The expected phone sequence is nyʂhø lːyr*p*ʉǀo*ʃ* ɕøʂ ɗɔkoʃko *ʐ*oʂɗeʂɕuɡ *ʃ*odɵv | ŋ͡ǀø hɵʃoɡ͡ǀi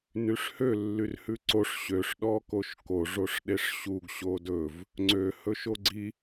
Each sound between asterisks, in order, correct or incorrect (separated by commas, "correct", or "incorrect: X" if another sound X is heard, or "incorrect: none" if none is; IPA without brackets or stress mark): incorrect: h, incorrect: ʂ, correct, incorrect: ɕ